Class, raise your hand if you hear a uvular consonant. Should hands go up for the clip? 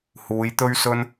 no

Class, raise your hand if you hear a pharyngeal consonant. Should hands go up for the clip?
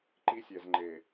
no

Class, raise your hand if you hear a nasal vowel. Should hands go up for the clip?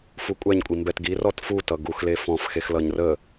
yes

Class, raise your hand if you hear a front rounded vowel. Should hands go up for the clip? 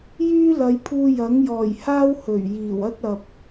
yes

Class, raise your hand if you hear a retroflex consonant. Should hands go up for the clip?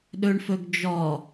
yes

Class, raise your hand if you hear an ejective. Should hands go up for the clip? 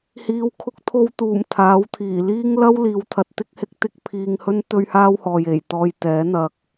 no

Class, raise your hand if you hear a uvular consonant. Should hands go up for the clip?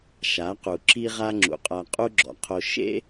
yes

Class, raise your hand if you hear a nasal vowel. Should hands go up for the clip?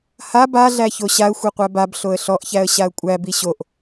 no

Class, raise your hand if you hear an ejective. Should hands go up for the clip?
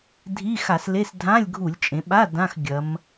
yes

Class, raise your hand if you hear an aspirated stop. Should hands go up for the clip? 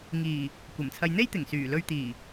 yes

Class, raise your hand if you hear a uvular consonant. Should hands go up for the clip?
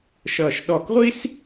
yes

